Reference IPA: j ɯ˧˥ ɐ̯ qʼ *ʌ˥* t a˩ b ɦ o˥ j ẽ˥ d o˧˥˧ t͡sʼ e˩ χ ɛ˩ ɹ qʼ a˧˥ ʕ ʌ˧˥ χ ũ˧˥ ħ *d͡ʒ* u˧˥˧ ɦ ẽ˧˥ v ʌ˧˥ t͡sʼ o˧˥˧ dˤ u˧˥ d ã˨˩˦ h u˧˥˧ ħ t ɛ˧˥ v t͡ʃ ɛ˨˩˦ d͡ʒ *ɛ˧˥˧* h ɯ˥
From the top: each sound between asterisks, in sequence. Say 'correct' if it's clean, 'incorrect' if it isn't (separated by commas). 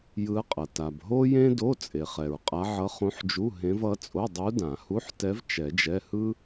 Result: incorrect, correct, correct